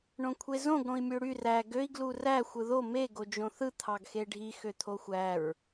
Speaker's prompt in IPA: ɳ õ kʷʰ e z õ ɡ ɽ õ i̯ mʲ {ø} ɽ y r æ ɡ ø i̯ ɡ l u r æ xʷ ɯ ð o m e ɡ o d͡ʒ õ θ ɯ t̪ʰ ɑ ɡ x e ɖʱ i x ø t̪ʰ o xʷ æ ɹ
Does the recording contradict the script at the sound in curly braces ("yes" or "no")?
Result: no